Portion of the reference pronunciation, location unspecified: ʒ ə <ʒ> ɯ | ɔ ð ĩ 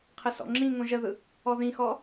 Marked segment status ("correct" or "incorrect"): incorrect